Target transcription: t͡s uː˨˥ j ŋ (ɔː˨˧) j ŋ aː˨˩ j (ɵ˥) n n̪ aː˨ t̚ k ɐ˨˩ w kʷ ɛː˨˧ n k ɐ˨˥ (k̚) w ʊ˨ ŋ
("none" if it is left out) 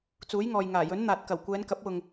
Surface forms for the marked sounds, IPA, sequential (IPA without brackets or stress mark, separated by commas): ɔː˨, ɵ˨˥, p̚